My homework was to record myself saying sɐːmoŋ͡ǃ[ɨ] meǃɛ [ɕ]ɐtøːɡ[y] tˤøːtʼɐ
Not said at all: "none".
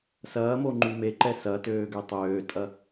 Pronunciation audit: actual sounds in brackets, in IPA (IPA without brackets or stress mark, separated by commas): y, s, ø